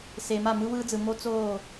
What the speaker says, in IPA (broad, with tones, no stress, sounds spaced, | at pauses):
s e˨ m a˦˨ m ɯ˦ w ɯː˦ d͡z ɯ˨ m o˦ t͡s oː˦˨